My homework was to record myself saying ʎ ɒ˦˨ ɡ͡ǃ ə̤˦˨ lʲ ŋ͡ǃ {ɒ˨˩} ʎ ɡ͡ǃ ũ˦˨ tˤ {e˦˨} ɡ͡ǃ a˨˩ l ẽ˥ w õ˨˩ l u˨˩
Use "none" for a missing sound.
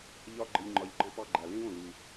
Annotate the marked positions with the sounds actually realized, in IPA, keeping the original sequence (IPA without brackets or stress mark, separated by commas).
ɒ˨˩, e˦˨